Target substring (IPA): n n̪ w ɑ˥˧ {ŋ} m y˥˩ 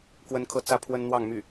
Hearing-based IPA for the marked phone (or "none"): ŋ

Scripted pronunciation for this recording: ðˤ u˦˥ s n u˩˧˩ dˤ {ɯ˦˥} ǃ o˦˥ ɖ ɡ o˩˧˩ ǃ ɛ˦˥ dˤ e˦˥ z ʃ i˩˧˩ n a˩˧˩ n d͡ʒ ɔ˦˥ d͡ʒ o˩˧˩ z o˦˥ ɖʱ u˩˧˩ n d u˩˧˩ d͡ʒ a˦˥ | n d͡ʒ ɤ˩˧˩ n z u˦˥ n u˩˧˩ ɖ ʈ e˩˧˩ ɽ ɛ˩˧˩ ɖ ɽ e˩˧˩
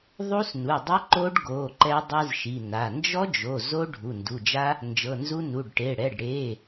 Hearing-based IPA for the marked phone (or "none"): ɯ˦˥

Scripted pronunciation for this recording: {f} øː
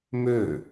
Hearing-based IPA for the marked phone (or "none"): m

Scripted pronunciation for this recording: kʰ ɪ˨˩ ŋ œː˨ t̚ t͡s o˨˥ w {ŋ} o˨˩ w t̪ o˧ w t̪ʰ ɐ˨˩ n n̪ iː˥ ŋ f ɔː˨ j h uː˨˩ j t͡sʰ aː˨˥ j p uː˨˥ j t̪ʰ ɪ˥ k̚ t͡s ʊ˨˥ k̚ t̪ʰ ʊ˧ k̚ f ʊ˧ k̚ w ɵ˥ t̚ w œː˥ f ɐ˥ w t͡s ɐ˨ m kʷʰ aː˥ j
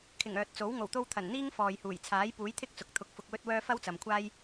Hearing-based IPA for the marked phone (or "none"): ŋ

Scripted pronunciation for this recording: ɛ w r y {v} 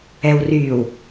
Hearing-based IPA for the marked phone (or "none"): w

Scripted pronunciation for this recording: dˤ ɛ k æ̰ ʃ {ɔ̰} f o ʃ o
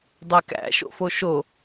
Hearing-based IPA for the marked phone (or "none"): o̰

